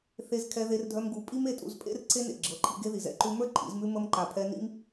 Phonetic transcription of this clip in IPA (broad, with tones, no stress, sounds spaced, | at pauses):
θ e˧ z kʰ ɛ˧ ð e˧ r dʱ œ˧ m ɡ u˨˦ pʼ i˦ m e˧ tʼ ṵ˧ z pʼ ḛ˦ r ǀʰ e˦ n ḛ˨ ɡ͡ǁ ɤ˨˦ ǃʰ ḭ˧ ɡ e˦ ð i˨ z ɛ̰˧ ǃ ʉ˧ m ə˞˦ ǃʰ ḭ˨˦ z m ʉ˦ m ə˦ m ǃ a˨ pʰ ɛ˧ n ḭ˦ m